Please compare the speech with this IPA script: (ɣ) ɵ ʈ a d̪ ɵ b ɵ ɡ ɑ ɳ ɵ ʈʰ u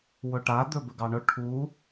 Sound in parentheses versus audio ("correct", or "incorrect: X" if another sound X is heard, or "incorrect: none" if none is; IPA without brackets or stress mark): incorrect: w